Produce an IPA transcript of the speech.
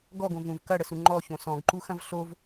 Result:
ɡɔɡõvũv kɐɽəsu ŋ͡ǃɔçõ sɔ̃ɡǃuxɐ̃v ɬov

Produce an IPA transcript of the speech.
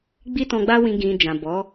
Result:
ɡ͡bi˦tɔ̃˧ɡ͡ba˦wĩ˧ ɡĩ˧ d͡ʒã˨bɔ˨˦

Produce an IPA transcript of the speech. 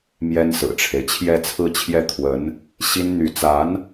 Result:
mjɛ˥nsɹ̩˨˩ʈ͡ʂʰe˦ɪ̯ t͡ɕʰjɛ˥˧t͡sʰɹ̩˥˧t͡ɕʰjɛ˥˩ t̪ʰwə˧˥n | ɕi˥n n̪y˧˥ t͡sa˧˥n

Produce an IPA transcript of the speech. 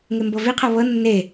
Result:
ŋembɤviqʰɤ βɤ nːe

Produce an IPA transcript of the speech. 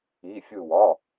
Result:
i˧˥˧fʲɯ˥˧ wɒ˧˥˧

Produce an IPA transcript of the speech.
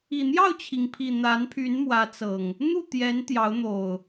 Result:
i˨˩n̪jɑ˥˨ʊ̯t͡ɕʰi˩ŋpʰi˨˩ n̪a˨˦npʰy˨˦nmwä˨˦t͡sɤ˨˩ŋ | n̪u˥˨t̪jɛ˨˦n t̪jɑ˨˦ʊ̯n̪o˨˩ʊ̯

